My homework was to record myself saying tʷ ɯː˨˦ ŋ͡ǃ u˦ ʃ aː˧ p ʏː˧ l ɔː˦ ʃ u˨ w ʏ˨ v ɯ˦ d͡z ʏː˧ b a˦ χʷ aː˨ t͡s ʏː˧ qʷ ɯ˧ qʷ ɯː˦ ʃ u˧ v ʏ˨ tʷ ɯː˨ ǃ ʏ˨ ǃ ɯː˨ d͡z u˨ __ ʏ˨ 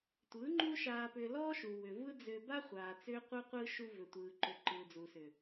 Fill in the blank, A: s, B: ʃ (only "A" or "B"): A